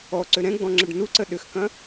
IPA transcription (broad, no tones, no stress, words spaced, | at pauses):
ɔ ǀʏɾɛ̃ɡ͡bɔ̃ŋ͡ǁəɖ nuǀə ɗʏxkɐ̃